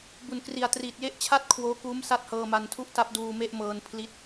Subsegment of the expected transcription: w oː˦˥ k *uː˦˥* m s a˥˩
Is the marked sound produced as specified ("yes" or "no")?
yes